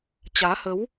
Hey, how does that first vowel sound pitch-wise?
rising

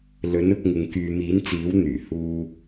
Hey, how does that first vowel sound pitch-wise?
rising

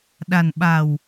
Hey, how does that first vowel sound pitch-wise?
low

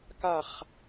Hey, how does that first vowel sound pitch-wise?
low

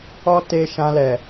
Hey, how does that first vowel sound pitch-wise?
high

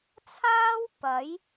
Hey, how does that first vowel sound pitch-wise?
high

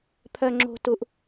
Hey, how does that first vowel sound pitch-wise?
low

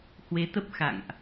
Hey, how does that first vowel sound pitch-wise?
rising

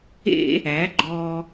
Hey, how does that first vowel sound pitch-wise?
high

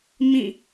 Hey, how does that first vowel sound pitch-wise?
falling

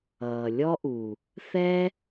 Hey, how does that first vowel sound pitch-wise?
low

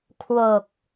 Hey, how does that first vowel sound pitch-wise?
low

